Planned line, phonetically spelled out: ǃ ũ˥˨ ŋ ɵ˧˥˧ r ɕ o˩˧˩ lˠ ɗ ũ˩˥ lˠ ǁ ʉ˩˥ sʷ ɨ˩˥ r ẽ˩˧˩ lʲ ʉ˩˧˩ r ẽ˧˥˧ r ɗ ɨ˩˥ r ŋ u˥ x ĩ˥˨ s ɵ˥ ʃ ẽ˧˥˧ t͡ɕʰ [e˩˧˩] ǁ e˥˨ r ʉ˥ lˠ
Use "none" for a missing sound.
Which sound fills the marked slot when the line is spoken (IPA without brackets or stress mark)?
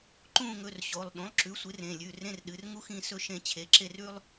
e˩˧˩